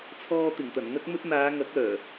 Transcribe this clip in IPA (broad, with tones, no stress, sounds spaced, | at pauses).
t͡sʰ ɔː˧ t̪ ɪ˨˩ ŋ t̪ ɐ˨˩ n ŋ ɐ˥ k̚ m ɵ˥ t̚ n̪ aː˨˧ ŋ ɐ˨˥ k̚ œː˨˩